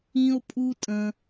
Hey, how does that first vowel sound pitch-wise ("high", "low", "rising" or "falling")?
high